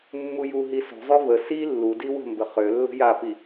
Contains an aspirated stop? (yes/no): no